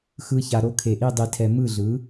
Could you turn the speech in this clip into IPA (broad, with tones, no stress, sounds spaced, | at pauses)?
x ɯ˧˥˧ ç a˧ ɾ o˧ kʰ e˨˩ ʔ i˥˩ dˤ i˧ tʰ ɛ˧ m ɯ˥˩ ɮ ɯ˩˥